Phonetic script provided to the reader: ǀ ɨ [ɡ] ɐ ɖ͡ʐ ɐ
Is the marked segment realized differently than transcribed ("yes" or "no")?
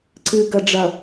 no